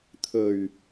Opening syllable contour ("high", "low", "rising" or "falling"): low